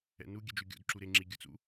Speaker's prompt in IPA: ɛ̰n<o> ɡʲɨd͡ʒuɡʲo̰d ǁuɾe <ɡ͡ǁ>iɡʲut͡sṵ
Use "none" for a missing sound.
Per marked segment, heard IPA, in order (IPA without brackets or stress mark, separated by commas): u, ŋ͡ǁ